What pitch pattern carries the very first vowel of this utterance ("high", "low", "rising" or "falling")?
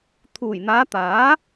low